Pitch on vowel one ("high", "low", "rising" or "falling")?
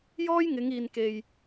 high